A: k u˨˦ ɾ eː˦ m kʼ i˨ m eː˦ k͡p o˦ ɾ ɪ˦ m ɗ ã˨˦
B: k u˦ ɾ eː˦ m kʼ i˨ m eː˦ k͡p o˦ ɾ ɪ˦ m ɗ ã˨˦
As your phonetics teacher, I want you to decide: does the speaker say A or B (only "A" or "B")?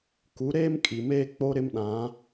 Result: A